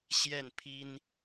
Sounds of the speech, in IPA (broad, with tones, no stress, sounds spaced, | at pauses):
ɕ j ɛ˥˩ n pʰ i˥ n